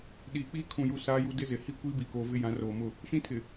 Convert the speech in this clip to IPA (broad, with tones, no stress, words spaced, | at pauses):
ɗiː˨k͡piː˦ kʰũ˨ju˨ saː˦ju˦ dɪ˦zɪ˨ hi˦ kʷiː˦bi˨koː˨ vɪ˦jã˨˦ roː˨mʊ˦˨ | ʃĩ˦tʰɪ˨